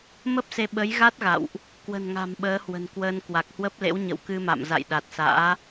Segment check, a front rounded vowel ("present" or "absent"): absent